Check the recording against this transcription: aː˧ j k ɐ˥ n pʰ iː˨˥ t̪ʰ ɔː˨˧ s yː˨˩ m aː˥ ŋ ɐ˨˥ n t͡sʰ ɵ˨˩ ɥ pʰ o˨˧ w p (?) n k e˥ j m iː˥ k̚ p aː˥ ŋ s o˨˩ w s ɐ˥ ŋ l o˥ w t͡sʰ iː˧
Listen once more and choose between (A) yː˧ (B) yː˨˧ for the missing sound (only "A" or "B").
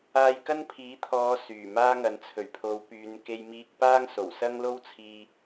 B